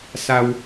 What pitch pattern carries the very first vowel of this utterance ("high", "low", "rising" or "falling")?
low